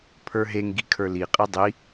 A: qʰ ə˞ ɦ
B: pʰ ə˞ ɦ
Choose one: B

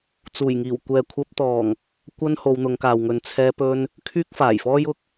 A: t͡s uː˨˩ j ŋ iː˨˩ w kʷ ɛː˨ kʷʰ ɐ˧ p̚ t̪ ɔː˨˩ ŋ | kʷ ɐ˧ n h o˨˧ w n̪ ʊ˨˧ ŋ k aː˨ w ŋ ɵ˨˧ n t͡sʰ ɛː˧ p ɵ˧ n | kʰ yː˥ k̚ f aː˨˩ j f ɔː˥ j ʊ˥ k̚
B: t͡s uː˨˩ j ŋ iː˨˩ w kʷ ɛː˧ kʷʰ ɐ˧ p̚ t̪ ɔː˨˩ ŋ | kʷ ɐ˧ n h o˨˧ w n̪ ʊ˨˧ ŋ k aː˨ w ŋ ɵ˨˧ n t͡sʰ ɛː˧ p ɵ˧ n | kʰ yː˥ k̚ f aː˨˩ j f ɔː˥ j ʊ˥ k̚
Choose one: A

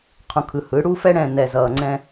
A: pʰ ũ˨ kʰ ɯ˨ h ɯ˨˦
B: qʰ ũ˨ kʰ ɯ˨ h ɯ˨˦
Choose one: B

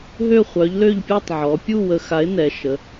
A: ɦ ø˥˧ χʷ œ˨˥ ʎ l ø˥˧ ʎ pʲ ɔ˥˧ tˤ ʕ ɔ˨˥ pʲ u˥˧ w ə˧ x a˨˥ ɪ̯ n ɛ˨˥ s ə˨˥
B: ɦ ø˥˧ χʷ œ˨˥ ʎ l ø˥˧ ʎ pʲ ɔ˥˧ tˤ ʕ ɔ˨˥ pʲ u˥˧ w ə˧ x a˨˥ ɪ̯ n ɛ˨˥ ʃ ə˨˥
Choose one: B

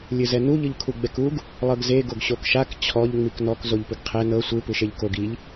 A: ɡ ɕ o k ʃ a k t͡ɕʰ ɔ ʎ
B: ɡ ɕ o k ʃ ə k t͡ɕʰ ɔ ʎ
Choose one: A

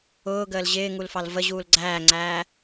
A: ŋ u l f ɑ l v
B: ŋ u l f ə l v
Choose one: A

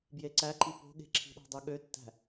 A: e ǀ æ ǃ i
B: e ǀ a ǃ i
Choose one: A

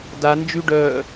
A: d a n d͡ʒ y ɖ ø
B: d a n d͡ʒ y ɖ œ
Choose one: B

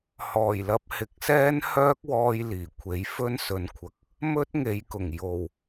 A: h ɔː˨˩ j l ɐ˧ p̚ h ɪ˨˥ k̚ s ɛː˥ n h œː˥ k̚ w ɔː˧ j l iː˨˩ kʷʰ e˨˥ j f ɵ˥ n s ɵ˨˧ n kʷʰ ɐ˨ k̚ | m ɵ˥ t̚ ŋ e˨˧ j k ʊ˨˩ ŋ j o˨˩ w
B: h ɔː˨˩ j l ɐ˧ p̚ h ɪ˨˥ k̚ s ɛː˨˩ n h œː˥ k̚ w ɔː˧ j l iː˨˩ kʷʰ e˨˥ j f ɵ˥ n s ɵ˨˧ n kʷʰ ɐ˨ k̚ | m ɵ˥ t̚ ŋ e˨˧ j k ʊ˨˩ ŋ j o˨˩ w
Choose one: A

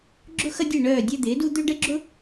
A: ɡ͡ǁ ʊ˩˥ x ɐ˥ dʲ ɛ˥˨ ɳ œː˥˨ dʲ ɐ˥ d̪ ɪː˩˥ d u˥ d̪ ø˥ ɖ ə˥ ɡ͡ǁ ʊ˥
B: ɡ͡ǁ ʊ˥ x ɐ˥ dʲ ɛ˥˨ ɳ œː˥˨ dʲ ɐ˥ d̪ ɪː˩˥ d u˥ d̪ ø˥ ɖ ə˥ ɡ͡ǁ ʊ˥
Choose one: B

